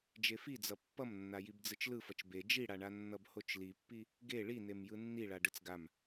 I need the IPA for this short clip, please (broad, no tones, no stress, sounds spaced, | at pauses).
d͡ʒ e f i d͡z ʌ pː ʌ m nː a j i b d͡z ɯ t͡ʃ l ɯ f ʌ t͡ʃ b e d͡ʒ i ɽ a ɳ a nː ʌ b h o t͡ʃ l i pː i | ɡ e ɭ i n e m j ɯ nː i ɭ a ɖ ɯ t͡s ɡ a m